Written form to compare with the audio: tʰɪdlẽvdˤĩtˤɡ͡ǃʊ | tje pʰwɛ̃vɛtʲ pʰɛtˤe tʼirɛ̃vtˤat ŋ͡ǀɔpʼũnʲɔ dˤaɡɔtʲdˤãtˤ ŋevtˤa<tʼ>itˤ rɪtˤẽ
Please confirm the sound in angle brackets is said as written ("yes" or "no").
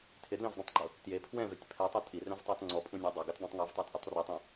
yes